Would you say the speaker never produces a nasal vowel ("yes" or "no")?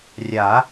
yes